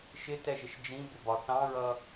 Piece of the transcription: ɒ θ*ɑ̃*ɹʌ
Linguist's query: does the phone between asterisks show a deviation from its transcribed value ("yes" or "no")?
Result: no